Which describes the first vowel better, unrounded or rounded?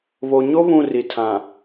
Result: rounded